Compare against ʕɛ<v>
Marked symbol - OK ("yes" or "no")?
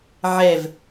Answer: yes